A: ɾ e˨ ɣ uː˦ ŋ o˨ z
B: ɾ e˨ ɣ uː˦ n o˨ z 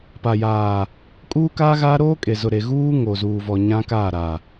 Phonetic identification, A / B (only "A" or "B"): A